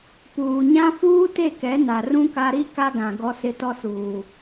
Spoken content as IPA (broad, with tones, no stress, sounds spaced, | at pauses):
p uː˨ ɲ ã˦ f uː˦ t e˦˨ k ɛ˨˦ n a˨ r ũ˦ k a˦ ɾ i˦ k a˦ ɡ ã˨ ɡ ɔ˦ s ɪ˦ t ɔ˦ s uː˨